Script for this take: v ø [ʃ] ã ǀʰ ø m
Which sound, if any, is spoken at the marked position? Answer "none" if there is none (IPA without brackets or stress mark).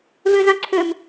z